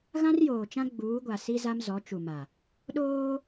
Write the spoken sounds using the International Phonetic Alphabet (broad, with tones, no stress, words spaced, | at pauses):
ɣã˦rjoː˨t͡ʃã˦ ɡ͡buː˨˦ɡʷa˨si˦ za˦mzɔ˨˦t͡ʃu˨ma˨ | ɗoː˦